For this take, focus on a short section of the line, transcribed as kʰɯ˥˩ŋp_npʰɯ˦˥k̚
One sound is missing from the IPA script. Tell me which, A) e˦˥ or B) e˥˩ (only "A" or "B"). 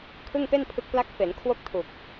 B